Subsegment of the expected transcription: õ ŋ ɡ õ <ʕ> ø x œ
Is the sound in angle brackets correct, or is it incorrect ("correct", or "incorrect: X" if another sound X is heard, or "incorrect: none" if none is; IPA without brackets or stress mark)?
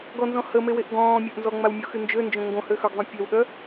incorrect: h